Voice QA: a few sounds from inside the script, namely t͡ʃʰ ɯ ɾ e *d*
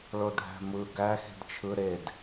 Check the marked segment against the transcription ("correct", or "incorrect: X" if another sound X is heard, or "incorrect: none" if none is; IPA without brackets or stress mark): correct